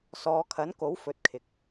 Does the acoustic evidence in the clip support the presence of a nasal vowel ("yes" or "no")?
no